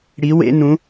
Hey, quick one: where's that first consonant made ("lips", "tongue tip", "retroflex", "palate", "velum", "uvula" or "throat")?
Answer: retroflex